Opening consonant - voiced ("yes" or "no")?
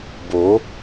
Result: yes